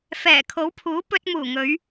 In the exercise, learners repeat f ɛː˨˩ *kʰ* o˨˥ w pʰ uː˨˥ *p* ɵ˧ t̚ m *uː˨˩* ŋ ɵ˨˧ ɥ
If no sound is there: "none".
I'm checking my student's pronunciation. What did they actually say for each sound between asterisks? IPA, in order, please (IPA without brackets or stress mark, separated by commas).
kʰ, p, uː˨˩